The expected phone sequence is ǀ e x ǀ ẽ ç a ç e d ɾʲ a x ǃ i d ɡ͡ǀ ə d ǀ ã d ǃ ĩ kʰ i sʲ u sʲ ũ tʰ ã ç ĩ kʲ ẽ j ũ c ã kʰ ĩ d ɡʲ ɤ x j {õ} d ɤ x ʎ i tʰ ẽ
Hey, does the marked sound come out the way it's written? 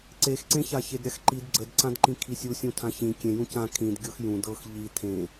no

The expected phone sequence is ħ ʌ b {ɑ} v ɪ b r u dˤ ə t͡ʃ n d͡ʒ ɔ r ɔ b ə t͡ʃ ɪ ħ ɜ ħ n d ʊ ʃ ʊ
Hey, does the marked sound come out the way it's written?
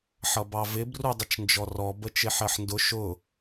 yes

